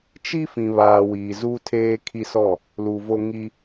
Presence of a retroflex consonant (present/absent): absent